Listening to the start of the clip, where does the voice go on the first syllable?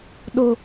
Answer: high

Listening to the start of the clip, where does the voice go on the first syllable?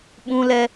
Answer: high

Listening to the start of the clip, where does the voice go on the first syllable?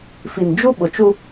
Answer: low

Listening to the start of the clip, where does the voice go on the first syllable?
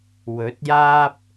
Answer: rising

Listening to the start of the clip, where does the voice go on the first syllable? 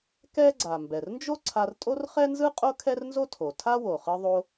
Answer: high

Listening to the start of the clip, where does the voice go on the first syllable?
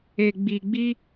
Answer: low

